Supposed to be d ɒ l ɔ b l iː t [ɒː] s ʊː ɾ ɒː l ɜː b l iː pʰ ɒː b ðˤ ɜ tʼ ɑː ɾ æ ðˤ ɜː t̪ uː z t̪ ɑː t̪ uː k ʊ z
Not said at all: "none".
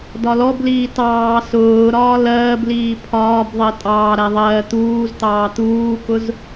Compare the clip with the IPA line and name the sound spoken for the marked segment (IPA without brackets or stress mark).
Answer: ɑː